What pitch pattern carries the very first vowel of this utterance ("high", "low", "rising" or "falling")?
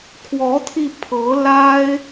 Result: rising